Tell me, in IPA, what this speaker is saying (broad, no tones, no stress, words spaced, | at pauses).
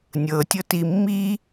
nʲɤ tʲɤtimːi